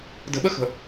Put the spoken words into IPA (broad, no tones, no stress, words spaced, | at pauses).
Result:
də̤ɓəxə̤